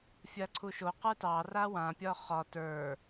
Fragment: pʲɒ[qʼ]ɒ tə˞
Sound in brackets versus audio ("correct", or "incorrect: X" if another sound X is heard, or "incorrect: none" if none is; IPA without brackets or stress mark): incorrect: χ